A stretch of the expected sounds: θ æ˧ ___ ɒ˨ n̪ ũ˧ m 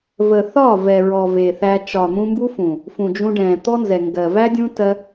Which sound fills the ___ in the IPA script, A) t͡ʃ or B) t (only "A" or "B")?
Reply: A